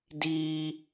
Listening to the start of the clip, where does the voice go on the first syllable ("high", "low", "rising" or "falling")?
low